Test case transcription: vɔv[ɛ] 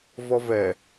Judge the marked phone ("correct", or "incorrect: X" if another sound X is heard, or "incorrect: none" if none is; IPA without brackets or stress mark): correct